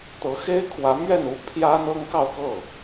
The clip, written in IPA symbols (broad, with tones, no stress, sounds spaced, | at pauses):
t̪ ɤ˧˥ x e˥ ɪ̯ kʰ w ä˧˥ m ɥ ɛ˥˩ n u˥ pʰ j ä˥ n̪ ɤ˥ ŋ k ɑ˥˧ ʊ̯ k ɤ˥˩